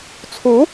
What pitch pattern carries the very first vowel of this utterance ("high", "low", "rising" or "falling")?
rising